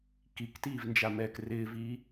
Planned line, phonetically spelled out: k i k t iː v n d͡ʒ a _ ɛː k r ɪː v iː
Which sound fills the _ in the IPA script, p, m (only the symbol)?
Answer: m